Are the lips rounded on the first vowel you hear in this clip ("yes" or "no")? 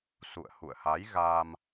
yes